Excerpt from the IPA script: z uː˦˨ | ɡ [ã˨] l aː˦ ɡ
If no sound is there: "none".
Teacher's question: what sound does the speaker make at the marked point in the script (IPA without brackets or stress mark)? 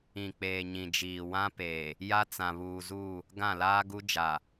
ã˦˨